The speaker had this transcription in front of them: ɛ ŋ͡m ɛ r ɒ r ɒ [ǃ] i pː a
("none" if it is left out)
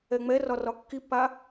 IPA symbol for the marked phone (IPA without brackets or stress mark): kː